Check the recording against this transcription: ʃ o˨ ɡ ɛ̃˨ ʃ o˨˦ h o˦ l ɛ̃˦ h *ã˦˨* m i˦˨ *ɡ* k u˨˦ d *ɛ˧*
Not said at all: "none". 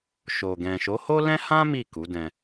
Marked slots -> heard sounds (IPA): ã˦, none, ɛ̃˧

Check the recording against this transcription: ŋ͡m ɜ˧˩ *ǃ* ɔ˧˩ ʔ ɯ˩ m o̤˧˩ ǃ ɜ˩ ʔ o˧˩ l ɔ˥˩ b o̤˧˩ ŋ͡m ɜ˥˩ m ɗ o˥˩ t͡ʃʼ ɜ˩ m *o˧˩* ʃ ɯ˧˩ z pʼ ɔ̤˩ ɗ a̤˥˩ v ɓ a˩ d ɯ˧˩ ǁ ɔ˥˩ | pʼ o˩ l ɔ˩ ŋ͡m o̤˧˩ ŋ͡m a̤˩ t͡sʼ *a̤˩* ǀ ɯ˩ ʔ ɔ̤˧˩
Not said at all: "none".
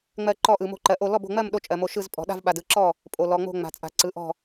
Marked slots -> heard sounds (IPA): ǃ, o˧˩, a̤˩

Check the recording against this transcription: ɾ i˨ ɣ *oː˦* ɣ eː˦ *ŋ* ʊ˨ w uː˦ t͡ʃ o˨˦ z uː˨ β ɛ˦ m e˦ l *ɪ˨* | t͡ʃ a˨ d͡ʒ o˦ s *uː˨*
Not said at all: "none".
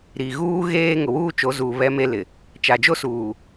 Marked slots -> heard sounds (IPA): uː˦, ŋ, ɪ˨, uː˨

